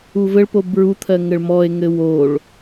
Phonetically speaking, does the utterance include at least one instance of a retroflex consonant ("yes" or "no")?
yes